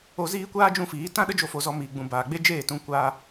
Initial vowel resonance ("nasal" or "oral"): oral